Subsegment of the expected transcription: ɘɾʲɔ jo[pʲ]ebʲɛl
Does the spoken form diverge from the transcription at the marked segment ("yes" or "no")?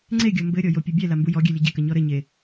no